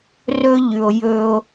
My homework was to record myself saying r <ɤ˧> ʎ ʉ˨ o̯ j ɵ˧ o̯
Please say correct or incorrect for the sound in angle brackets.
incorrect